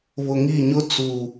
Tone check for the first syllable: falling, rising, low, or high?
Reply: low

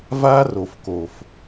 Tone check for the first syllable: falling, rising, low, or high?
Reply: high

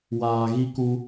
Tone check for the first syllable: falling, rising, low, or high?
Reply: low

